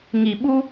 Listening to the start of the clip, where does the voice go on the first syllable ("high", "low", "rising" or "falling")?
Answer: low